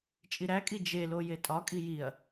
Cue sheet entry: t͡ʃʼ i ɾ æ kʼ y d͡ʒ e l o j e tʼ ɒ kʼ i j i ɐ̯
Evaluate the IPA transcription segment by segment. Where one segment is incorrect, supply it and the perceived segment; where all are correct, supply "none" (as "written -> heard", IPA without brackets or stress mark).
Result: y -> i